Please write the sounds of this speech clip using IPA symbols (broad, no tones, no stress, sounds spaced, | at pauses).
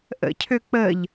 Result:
ʔ ə̰ cʰ ø k͡p ə ʎ